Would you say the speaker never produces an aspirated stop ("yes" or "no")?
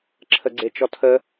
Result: no